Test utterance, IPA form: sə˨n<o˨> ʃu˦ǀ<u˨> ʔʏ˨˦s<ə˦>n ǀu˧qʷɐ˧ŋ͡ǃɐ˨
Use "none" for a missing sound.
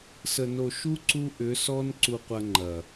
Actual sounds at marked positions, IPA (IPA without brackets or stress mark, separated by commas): o˨, u˧, ɔ˦